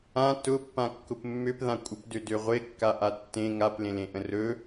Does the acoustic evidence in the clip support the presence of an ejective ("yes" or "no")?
yes